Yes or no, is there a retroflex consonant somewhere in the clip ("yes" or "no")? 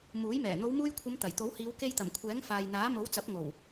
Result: no